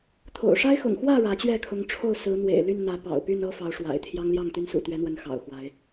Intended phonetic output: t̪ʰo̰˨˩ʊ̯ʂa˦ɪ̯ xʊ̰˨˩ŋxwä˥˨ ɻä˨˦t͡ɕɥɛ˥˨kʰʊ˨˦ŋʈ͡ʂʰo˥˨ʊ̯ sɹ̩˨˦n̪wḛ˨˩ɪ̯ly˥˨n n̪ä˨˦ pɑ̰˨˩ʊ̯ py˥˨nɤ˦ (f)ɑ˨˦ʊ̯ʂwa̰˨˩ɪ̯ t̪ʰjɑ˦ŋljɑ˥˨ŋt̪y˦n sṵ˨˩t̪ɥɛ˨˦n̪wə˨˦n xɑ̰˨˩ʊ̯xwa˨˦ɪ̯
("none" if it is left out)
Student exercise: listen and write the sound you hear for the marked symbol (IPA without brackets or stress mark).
f